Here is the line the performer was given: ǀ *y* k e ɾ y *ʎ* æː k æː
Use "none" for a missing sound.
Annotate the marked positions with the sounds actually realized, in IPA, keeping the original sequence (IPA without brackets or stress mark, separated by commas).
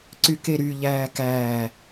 y, ʎ